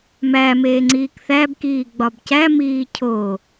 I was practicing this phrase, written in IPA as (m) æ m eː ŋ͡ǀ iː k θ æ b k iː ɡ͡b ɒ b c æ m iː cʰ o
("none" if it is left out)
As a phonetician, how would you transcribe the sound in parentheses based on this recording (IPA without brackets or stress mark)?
m